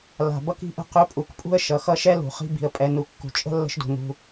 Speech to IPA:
l a̤˩ b ʌ˥ k i̤˥ ʔ ə̤˦ q ɵ˦ pʼ u˨ k pʼ ṳ˥ ə̯ ʃ ʌ˩ x ʌ˥ ʃ ɛ˥ l ṳ˩ χ i̤˦ b i̤˩ ə̯ pʼ ɛ˨ n u˨ kː ṳ˨ t͡ʃʼ ə̤˥ lː ə̤˦ ʃ d ṳ˩ n ṳ˨

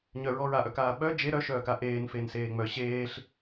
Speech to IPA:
ɲ œ ɹ ɔ ɹ a ʔ œ k aː ɓ œ d͡ʒ e ɾ œ ʃ œː k a ʔ eː n f e n s eː ŋ͡m œ ɕ eː ɬ

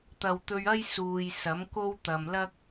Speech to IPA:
t̪ ɐ˨ w t̪ ɵ˧ ɥ ɐ˥ j s uː˨ j s ɐ˨˥ m k o˥ w t̪ ɐ˨ m l ɐ˥ k̚

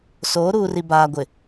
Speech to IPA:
s oː˨˦ ɾ uː˨ r i˨ b aː˨ ɡʷ ɪ˨

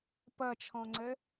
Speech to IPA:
p ʌ t͡ʃʰ ɔ̃ ŋ͡ǀ ə

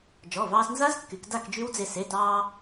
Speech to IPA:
d͡ʒ ɔ˩˧˩ v ɑː˧ s n z a˦˥ z kː y˩˧ k d a˥˨ k d͡ʒ y˦˥ w d͡z e˧ s e˩˧˩ t ɑː˧

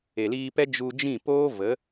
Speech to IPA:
e˨ l iː˧ p ɛ˦ d͡ʒ u˧ d͡ʒ ĩ˦˨ p oː˦ v ə˨˦

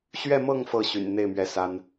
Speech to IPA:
ɕ ɥ ɛ˥˧ m ɤ˥˧ ŋ f ɤ˥˩ ɕ y̰˨˩ n n̪ e˥˩ ɪ̯ m ɥ ɛ˧˥ s a˥ n

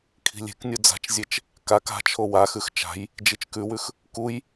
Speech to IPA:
kʰ i̤ lʲ e̤ k nʲ u d͡z a̤ t͡ʃ zʲ e t͡ʃ | k a k a̤ t͡ʃʰ o w a x ʉ x t͡ʃ a̤ j | d͡ʒ i t͡ʃ k ʉ w ʉ x | k u j

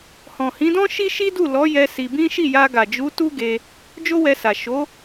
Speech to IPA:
h ɔ̃˨ h ĩ˨˦ d ɔ̃˦ ʃ i˦ ʃ i˦ d u˦˨ l ɔ˨˦ j ɛ˧ s i˧ b ĩ˦ ʃ i˦˨ j a˧ ɡ a˨ d͡ʒ u˨˦ t u˦ ɡ e˧ | d͡ʒ o˦ w ɛ˧ s a˨ ʃ o˨˦

